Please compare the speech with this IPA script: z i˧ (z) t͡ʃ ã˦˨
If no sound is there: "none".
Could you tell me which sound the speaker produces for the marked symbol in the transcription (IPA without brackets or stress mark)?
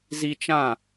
none